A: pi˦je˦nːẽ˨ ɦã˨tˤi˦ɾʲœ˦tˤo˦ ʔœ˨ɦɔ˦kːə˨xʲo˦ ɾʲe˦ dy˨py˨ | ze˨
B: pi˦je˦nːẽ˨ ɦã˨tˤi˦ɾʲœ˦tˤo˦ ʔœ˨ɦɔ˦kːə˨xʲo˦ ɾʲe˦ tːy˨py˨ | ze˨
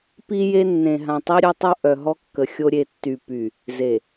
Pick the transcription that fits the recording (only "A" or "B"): B